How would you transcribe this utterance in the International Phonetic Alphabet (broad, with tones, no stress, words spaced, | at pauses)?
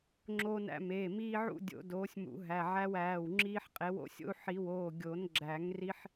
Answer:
ŋ͡ǁoː˦næ̰˦meː˩˧˩ miː˦ʕṵ˦ dʲo̰˨˩˦doː˩˥sʲmṵ˨˩˦ ɦæ˩˧˩ʕæ˦wæː˩˧˩wŋ͡ǁiː˦ħ qʼe˩˥wo̰˦sʲo̰˦u̯ ħi˨˩˦woː˩˧˩ ɡʲo˨˩˦nɡ͡ǁæ˨˩˦ŋ ri˦ħ